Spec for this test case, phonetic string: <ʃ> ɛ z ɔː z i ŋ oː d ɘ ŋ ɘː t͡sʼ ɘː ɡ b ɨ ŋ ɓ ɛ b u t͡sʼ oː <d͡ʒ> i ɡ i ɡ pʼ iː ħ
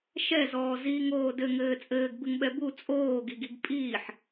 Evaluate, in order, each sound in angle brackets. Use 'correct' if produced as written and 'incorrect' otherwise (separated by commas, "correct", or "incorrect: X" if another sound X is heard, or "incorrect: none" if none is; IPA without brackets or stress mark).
correct, incorrect: ɡ